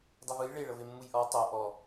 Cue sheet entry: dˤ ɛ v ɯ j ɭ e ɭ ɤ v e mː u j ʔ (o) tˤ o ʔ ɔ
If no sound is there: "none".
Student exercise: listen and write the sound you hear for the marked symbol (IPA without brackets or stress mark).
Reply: ɔ